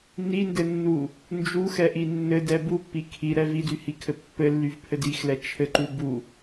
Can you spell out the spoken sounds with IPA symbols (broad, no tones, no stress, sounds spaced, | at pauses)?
n i n d ɘ nː u | n d͡ʒ u x ɛ ʔ i nː ɘ d ɛ b u pː i kʰ i ɾ ɛ v i d y h i kʰ ɘ pː ɘ lː y v pʰ ɘ d i x l ɛ t͡ʃʰ ɘ ǃ u b u